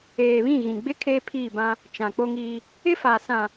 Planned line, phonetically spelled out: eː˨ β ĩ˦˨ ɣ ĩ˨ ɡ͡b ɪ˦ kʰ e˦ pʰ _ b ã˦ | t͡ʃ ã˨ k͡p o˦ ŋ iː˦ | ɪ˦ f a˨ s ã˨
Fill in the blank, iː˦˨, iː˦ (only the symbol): iː˦˨